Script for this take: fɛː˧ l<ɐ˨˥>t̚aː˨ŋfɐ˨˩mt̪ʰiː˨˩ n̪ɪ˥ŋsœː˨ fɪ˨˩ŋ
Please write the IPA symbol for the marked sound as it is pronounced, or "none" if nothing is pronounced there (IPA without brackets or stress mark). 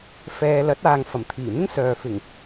ɐ˨˥